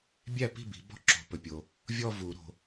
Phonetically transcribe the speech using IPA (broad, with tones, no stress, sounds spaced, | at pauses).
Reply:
bʲ æ˥˩ p i̤˥˩ b i̤˨˩˦ b ɔ̤˥˧ ǁ o̤˨ p ɵ˨ pʲ o˨ | vʲ ɔ˥˧ v u˨˩˦ ɾ o̤˨